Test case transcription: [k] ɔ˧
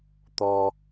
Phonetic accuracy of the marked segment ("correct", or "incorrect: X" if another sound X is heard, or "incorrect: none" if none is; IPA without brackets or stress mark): incorrect: t̪